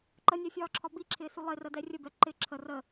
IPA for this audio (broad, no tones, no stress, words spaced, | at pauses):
ǃənʲæfʲɒːǁʰɒ biǁʰɪːsu lˠɪrədɛ rʲəbɛ ǃɪ ǁʰə rə